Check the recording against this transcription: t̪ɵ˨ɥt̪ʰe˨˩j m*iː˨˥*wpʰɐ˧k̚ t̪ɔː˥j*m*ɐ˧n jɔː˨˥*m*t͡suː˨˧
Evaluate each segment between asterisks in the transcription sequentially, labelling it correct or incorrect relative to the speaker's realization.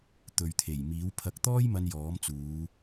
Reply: correct, correct, correct

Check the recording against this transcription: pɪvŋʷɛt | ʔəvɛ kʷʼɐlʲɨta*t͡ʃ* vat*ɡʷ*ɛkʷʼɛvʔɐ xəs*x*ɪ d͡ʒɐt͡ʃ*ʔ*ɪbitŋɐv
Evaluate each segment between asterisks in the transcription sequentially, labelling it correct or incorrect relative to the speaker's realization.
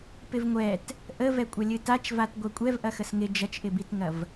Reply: correct, correct, incorrect, correct

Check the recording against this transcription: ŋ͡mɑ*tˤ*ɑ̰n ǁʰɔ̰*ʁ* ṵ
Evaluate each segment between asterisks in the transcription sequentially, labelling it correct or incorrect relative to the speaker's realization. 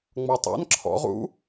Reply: correct, correct

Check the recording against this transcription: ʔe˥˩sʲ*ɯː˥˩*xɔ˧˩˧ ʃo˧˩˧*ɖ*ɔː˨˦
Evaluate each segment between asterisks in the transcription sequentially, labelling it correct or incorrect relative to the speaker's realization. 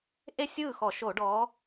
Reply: correct, correct

